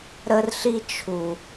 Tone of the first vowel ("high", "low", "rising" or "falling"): high